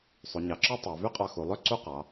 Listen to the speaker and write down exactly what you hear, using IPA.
sˤ u˩˧ ɲ ɑ˩˧ ǁ ɔ˥ tˤ ɑ˩˧ v y˥ qʼ ɑ˧ x u˩˧ lˠ ø˥ ǀ u˥˧ q ɑ˩˧

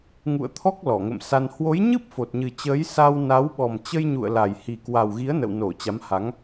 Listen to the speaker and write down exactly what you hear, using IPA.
ŋ ṵ˧˨ ə̯ t̪ʰ ɔ˦˥ k̚ l ɔ˧˩ ŋ ə̰˧˨ m s a˧ n h w o˨˦ j ɲ ɨ˦˥ p̚ f o˨˩ t̚ ɲ ɨ˨˩ t͡ɕ əː˨˦ j s a˧ w n a˨˦ w ɓ ɔ˨˩ m t͡ɕ ə˧ j ɲ ṵ˧˨ ə̯ l a˨˩ j h i˨˩ k w a˨˩ w ɣ i˨˦ ə̯ n ə̰˧˨ w n o˧˩ t͡ɕ a˨˦ m h a˨˦ ŋ

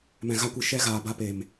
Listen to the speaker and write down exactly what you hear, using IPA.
m ɛ̃˨ ɣ a˧ kʷ ɨ˨ ʃ ɛ˦ ɣ aː˨ b a˧ p e˨ m

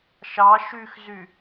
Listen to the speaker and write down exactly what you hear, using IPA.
ʃ ɑ ʃ y x z y

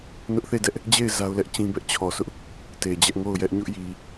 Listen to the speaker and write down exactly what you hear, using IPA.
n ʊ˦ ʔ θ e˦˨ d ɛ˦ ʔ | d͡ʑ e˦˨ ɪ̯ z a˦ ʊ̯ l ɛ˦ ʔ t͡ɕ ĩ˦ b ɛ˦ ʔ t͡ɕʰ ɔ˨ sʰ ʊ˦ ʔ | t e˨ d͡ʑ ɛ˦ ʔ ŋ o˦˨ ʊ̯ j ɛ˦ ʔ ɲ ʊ˦ ʔ j i˨

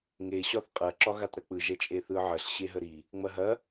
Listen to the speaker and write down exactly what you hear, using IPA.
ŋ e ɕ ɒ θ qʼ ɐ ǁ ɒ ɣ a t ɾ ɐ k͡p ɯ ʒ ɛ t͡ʃʼ e θ ɯ ʕ ə ɬ ɕ e ɦ ə ɾ i | ŋ͡m ɐ ɦ ɐ

